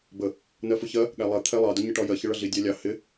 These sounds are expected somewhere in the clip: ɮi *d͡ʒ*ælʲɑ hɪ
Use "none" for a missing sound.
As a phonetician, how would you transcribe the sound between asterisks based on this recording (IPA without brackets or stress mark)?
dʲ